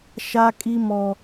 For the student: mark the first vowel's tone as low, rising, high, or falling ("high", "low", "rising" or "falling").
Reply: high